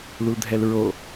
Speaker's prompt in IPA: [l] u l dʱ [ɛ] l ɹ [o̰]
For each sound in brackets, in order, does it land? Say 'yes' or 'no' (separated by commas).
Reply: yes, yes, no